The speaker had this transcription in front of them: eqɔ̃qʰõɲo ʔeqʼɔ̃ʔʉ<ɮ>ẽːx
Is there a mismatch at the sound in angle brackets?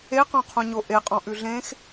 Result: no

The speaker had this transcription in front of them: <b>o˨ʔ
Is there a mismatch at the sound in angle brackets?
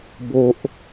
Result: no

